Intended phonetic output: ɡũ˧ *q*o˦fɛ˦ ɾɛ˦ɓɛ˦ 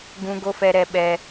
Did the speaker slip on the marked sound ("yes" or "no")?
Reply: yes